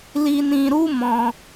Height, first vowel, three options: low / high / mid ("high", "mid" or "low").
high